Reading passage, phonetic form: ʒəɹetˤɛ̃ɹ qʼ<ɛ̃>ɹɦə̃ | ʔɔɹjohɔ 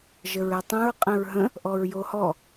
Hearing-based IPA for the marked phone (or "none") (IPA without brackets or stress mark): ɛ̃